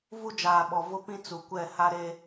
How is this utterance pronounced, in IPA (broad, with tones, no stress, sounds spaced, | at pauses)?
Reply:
v u˦ d͡ʒ aː˨ ɓ ɔ˨ v ʊ˦ p ĩ˦ t͡s u˨ kʷ ɛ˦˨ h a˦ ɾ e˦